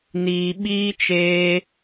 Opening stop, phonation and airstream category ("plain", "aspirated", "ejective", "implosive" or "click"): implosive